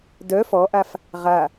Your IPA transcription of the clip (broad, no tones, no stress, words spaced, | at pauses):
dœ fɔʔaf | ʁa